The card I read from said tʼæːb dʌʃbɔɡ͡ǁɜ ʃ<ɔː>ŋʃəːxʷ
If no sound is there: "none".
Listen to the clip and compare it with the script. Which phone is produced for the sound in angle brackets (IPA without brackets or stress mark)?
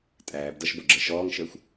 ɔː